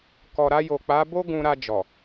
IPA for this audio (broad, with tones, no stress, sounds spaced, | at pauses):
k ɔ˨ ɾ a˧ j o˨ k͡p a˨˦ b o˦ ɡ ũ˧ ɾ a˧ d͡ʒ ɔ˨